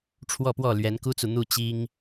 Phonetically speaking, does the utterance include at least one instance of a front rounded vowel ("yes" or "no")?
no